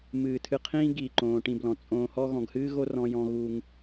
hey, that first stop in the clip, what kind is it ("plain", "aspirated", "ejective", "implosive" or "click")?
aspirated